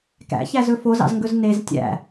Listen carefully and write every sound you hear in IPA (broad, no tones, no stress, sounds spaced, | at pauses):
k æ̰ ç æ z ɵ f o z ɑ̰ z ŋ ɡ ɵ z n e z tʲ æ̰